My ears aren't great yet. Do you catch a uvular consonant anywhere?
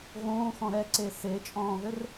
no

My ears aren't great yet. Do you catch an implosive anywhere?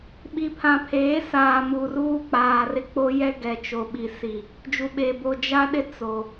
yes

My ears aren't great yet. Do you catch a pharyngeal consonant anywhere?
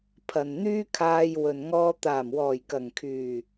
no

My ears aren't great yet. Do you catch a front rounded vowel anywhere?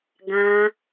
no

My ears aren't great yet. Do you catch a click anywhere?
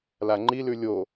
yes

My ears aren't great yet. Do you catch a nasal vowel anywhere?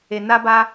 no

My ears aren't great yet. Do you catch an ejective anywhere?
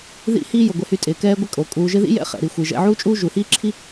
yes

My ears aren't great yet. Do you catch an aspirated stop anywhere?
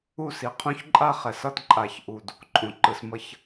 yes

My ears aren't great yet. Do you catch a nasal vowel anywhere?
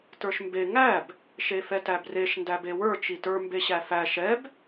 no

